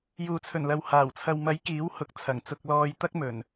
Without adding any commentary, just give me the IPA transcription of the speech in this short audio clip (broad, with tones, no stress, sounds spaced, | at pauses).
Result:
j uː˨ t͡sʰ ɵ˨˩ n l ɐ˨ w h aː˨˩ w t͡sʰ ɐ˨ w m ɐ˨˥ j k iː˨˥ w h ʊ˨˥ k̚ t͡sʰ ɐ˨˩ ŋ t͡s ʊ˧ k̚ l ɔː˧ j t̪ ɐ˥ k̚ m ɵ˨˩ n